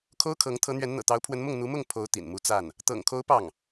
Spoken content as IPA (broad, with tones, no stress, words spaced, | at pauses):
kʰo˥ʊ̯kʰɤ˧˥ŋ t̪ʰɤ˧˥n̪ɥɛ˧˥nn̪ɤ̰˨˩ t̪ɑ˧˥ʊ̯pʰwə˧˥nmʊ˥˩ŋ n̪u˧˥mʊ˥˩ŋ pʰo˧˥ʊ̯ t̪ḭ˨˩nmu˥ t͡sa˥˩n | t̪ɤ̰˨˩ŋkʰo˧˥ʊ̯ pɑ˥˩ŋ